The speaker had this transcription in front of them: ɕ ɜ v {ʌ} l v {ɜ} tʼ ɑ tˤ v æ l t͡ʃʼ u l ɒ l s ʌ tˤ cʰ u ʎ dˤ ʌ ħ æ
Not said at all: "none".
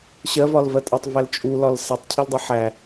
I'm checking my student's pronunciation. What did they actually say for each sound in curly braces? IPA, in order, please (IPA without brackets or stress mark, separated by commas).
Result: ɒ, ɜ